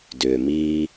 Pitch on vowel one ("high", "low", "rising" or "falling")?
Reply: low